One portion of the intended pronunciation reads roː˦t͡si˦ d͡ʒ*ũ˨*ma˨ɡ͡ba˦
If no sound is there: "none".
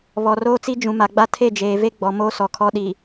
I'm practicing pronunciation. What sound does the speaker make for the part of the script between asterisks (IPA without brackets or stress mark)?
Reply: ũ˨